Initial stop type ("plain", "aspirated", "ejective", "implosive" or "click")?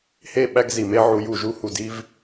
implosive